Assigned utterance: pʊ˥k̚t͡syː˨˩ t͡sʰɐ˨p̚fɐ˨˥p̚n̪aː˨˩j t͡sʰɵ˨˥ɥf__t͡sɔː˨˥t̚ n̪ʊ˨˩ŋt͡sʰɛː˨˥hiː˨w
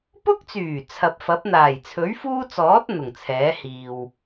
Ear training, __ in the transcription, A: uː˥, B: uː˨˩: A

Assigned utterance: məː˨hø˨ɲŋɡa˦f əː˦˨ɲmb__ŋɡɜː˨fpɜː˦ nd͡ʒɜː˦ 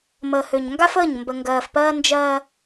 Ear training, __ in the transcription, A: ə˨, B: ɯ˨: A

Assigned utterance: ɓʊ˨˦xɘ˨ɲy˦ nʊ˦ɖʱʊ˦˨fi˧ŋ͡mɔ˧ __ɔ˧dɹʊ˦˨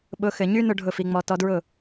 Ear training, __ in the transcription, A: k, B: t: B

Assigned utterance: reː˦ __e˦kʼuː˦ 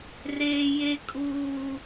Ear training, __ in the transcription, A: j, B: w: A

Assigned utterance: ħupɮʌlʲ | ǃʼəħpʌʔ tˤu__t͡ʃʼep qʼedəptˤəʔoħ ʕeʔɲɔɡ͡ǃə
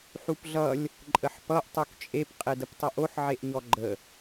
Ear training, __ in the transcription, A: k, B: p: A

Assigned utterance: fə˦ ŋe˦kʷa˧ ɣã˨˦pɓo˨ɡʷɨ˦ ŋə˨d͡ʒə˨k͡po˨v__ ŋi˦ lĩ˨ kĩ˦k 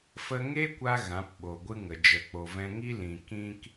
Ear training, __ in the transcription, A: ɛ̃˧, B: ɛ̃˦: A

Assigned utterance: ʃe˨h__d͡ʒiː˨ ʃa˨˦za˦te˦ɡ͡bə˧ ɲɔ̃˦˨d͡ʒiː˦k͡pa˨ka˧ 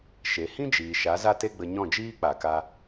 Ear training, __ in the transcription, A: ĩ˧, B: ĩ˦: B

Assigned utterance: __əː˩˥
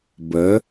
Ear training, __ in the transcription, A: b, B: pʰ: A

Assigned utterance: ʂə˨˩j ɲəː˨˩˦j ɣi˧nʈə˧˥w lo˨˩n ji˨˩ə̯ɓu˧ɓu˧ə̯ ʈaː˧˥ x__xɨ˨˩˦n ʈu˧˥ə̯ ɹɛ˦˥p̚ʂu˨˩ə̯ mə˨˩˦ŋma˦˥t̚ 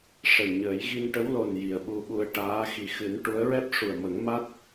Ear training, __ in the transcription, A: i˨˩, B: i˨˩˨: A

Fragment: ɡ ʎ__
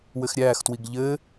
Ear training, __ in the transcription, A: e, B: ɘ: B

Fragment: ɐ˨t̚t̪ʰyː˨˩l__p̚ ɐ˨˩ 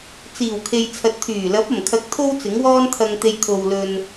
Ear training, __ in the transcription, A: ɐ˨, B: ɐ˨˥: B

